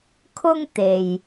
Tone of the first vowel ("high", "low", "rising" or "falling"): high